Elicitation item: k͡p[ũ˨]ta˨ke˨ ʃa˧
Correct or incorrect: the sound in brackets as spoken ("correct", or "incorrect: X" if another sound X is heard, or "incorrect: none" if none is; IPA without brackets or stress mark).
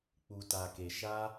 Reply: incorrect: u˨